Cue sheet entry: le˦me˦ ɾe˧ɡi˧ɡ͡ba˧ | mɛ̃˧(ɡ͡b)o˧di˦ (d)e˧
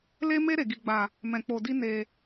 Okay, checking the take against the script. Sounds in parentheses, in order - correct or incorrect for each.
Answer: incorrect: k͡p, incorrect: n

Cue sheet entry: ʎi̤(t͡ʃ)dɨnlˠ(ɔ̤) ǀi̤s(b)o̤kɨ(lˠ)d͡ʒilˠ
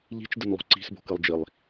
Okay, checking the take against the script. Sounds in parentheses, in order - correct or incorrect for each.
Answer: correct, incorrect: o̤, correct, correct

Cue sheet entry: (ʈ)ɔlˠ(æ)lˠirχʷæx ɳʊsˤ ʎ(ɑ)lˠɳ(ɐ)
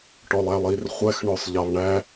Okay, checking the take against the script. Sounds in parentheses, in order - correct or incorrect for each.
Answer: correct, correct, correct, incorrect: æ

